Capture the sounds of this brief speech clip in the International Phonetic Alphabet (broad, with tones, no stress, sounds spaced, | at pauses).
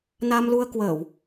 n a˧ m l u˧ ə̯ k w əː˧˩˨ w